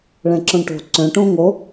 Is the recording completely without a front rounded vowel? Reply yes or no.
no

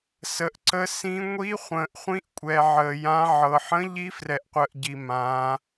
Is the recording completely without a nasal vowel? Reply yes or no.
no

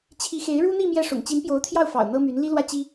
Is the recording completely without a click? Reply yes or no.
yes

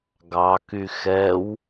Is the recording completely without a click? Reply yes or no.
yes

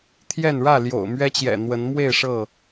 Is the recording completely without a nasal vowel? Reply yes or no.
yes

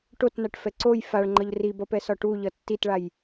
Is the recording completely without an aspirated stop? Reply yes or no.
yes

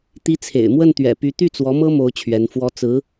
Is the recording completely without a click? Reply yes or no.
yes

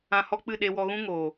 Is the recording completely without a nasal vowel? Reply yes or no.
no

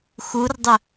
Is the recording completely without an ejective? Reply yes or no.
yes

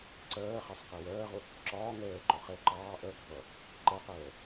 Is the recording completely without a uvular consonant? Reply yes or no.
no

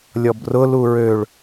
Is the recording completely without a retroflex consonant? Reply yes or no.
no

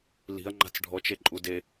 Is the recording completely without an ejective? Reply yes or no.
no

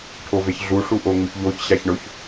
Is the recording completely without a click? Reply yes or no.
yes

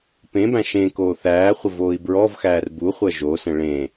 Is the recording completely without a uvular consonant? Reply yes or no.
no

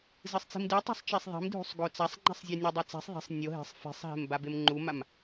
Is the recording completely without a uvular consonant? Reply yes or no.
yes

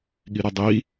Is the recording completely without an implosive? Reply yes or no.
no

